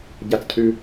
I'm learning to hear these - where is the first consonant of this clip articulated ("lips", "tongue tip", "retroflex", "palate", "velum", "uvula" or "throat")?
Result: palate